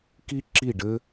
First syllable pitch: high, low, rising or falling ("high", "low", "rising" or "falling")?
high